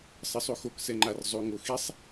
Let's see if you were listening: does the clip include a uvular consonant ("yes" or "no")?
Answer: no